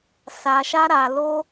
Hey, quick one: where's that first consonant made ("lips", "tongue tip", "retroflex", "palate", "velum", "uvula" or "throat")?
tongue tip